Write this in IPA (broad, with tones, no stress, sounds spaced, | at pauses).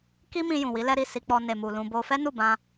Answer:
k i˦ m ĩ˧ j ũ˨ w i˨˦ l ɛ˦ ɾ i˦˨ s i˧ k͡p ɔ˧ n e˨ m u˨ l ũ˧ b o˦ f ɛ˦ n u˦˨ b ã˧